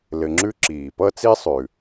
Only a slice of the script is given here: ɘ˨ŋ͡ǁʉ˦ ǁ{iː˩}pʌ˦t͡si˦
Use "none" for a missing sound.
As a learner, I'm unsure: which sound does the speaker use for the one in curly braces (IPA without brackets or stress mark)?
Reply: iː˩